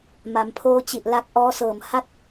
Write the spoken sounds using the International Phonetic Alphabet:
m a˩˦ m pʰ oː˦˥ t͡ɕ i˨˩ ʔ l a˦˥ k̚ ʔ ɔː˦˥ s ɤː˨˩ m h a˥˩ t̚

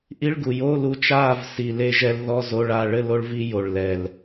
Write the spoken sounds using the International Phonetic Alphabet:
ʔ i˧˥˧ ɭ ɡ u˨˩ j o˧˥˧ l u˧ t͡ʃ a˥˨ v s i˨˩ l e˧ ʒ ɛ˧ l ð ɔ˧˥˧ z o˧˥˧ ɭ a˥˨ ɭ ɘ˥˨ l o˧ ɭ v i˧ j o˨˩ ɭ l ɛ˨˩ l

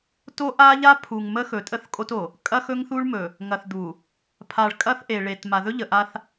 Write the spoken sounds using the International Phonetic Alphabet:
t o˦ ʔ a˦ ʎ a˦ pʰ u˨ ŋ m ə˦ x ɵ˨ tʼ ə˦ θ kʼ o˦ t o˨ | kʼ ɐ˦ x ɵ˦ ŋ θ u˦ ɭ m ɵ˨ | ŋ ɐ˨ θ d̪ u˨ | pʰ a˨ ɭ kʼ ɐ˦ θ ʔ e˨ ɭ e˨ t m a˨ ð ɵ˦ ʎ ə˨ ʔ a˦ θ

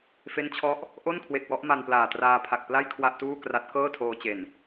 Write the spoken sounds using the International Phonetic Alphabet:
f e˦˥ n t͡ɕʰ ɔ˦˥ ʔ | ʔ o˥˩ n kʰ w e˨˩ k̚ w ɔ˥˩ ʔ m a˧ n p l aː˨˩ t r aː˧ pʰ a˨˩ k̚ p l a˥˩ j kʰ w a˥˩ ʔ t uː˥˩ k r a˦˥ t̚ k ɤː˥˩ tʰ oː˧ t͡ɕ e˨˩ n

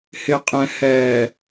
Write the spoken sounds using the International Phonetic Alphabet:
h ɪ˨ qʼ ɛ̃˨ h ɛː˨

